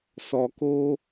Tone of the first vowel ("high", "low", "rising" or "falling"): low